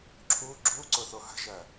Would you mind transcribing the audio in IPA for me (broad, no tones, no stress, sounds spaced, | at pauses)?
ǁʰ u ɡ͡ǁ u ǀ ʊ θ o h ə̤ ʒ ɜ